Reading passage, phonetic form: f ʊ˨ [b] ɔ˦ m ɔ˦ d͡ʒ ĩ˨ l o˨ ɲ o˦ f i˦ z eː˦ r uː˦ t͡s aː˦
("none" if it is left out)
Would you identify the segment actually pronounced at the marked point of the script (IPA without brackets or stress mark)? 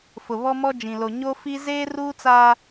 β